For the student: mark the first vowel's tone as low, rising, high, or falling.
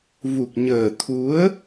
low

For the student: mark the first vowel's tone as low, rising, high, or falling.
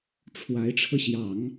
rising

